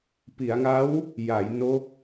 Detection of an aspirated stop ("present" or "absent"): absent